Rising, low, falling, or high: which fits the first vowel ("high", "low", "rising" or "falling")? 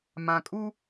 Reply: low